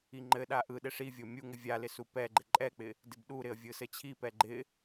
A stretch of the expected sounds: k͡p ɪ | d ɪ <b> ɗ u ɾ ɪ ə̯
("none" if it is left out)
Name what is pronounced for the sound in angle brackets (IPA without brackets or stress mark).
b